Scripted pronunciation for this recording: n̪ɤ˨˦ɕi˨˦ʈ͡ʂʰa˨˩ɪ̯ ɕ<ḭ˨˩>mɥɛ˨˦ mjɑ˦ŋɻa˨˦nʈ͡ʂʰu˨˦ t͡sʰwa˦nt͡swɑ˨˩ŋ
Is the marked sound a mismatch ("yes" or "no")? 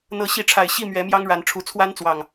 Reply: yes